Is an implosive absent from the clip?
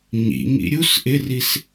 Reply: yes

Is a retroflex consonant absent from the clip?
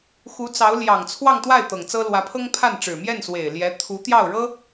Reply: no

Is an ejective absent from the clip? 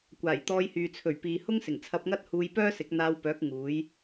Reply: yes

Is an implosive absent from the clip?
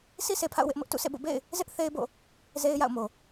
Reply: yes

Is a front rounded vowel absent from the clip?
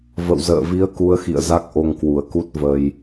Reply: yes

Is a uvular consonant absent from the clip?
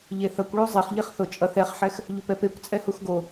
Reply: no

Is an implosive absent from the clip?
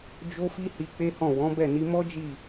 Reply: yes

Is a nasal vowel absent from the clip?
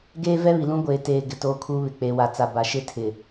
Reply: no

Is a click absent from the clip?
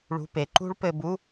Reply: no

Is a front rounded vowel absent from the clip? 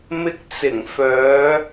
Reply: no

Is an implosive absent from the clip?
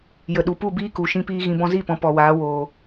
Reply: no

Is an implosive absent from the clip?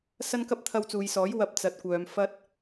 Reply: yes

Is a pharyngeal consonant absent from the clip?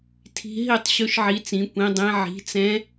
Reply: no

